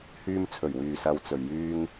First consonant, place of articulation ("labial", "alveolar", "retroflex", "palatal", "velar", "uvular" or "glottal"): glottal